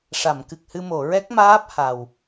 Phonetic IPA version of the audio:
ʂ a˨˩˨ m k ɨ˨˩ k̚ h ɨ˧ m o˨˩˨ ɹ ɛ˦˥ k̚ m aː˦˥ p̚ h a˨˩ w

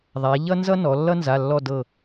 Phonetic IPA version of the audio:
ðˤ a˩˧ ʎ ʌ˥ n z ʌ˥ n ɔ˩˧ lː ʌ˥ n z a˩˧˩ lː ɔ˦˨ d ɤ˦˨

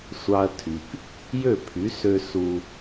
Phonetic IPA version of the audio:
sʷ ɑ˧ ɐ̯ tʰ y˨ p | j ø˦˨ pʰ y˨˦ s ø˧ s u˧

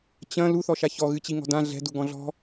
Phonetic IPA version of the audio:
t͡ɕ ɐ̃ l u θ ɔ ʃ a ç ɔ ɣ ɨ t͡ɕ i ŋ ɔ̤ d ã ɮ ɛ̤ d u ɡ ɔ̃ ɮ ɔ̤

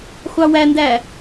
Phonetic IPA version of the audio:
χʷ ɑ w æ n d æ

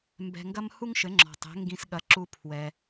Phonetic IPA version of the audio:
m b ɛ̤˧ ŋ ɡ ɐ˥ m h u˥ ŋ ʃ ɘ˩˥ ŋ͡ǁ ɔ̤˩ tˤ ɛ̤˩˥ ŋ ɡ ĩ˧ s ɠ ɐ˩˥ ǁ u˧ pʰ w ɛ˩

